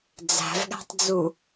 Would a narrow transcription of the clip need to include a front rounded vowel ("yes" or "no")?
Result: no